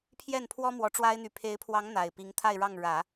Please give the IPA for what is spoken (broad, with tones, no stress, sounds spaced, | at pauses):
pʰ j ɛ˥˩ n pʰ w ɔ˥ m w ɔ˧˥ ʈ͡ʂ w a˥ ɪ̯ n̪ y˧˥ pʰ e˧˥ ɪ̯ pʰ w ɑ˧˥ ŋ n̪ a˨˩ ɪ̯ p i˧˥ ŋ t̪ʰ a˥˧ ɪ̯ ɻ ɑ˥˩ ŋ ɻ ä˨˩˦